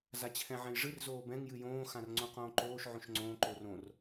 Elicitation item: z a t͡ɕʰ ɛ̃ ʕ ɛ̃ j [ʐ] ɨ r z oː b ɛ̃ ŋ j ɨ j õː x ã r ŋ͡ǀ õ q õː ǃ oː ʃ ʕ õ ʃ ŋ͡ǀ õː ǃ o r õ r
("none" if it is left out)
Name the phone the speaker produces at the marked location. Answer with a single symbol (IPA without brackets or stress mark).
ʐ